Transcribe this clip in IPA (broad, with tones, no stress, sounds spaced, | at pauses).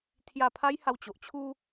t̪ʰ j a˥˧ pʰ a˦ j h a˧ w t͡ɕ o˨ ʔ t͡ɕʰ u˦